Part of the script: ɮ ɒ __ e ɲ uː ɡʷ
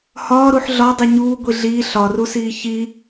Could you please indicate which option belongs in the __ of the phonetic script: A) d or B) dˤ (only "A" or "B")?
B